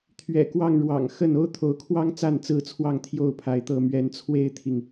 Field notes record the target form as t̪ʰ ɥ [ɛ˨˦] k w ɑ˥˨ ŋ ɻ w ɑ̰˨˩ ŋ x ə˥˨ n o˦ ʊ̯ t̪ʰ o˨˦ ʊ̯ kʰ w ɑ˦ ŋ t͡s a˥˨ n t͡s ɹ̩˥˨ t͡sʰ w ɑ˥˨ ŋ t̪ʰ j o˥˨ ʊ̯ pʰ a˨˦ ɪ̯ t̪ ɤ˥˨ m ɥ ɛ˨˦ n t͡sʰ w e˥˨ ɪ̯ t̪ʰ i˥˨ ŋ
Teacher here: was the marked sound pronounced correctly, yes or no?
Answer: no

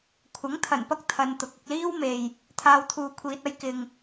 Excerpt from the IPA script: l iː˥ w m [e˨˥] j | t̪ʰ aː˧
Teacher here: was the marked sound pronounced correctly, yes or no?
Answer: no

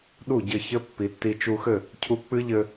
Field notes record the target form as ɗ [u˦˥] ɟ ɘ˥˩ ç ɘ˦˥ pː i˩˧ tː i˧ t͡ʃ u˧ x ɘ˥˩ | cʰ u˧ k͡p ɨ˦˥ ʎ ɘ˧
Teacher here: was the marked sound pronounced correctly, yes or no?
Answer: no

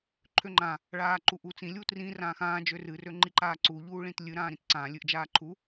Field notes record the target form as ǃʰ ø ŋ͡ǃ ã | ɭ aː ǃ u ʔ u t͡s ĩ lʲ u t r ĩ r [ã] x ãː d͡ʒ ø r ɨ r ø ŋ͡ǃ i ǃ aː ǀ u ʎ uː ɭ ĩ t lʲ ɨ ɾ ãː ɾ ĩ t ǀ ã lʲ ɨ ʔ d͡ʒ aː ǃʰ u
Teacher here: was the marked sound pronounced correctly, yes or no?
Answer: no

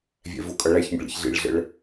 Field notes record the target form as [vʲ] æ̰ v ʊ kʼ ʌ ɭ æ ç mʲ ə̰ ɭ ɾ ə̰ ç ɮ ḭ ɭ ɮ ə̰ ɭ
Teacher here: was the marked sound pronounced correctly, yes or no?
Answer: yes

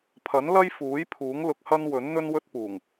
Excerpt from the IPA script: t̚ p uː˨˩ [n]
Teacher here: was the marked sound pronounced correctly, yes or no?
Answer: no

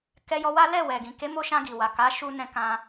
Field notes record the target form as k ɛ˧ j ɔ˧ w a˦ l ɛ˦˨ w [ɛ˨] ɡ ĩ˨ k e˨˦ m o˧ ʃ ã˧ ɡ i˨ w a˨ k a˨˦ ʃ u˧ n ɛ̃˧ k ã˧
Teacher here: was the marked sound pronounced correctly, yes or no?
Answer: yes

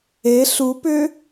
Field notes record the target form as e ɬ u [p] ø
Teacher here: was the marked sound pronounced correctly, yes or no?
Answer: yes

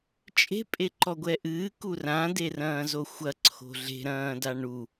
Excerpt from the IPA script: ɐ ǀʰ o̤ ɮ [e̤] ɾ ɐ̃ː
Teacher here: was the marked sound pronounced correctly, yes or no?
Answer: yes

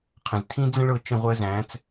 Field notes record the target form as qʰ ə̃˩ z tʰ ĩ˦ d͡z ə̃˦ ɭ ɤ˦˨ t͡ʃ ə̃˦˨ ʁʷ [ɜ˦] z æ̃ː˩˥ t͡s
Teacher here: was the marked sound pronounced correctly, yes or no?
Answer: yes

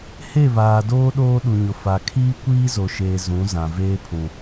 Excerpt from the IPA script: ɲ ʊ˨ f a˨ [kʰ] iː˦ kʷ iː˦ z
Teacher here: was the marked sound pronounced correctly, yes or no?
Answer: yes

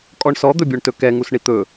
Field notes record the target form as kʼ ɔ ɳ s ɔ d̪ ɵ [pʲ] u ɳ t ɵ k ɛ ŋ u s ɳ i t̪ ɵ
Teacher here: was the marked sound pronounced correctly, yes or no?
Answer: no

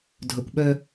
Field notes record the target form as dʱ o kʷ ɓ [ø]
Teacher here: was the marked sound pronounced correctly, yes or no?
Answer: no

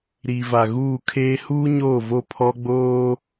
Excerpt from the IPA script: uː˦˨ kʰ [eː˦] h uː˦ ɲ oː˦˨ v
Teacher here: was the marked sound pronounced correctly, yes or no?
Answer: yes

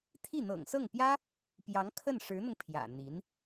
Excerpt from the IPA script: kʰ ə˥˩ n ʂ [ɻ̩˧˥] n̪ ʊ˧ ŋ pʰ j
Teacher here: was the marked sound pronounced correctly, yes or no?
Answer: yes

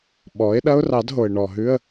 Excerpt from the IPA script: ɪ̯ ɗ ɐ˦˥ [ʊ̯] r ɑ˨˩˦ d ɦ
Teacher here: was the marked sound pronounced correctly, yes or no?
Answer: yes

